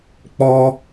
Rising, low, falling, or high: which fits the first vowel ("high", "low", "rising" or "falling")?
high